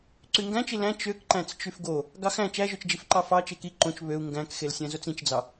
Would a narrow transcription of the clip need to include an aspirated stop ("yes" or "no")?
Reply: no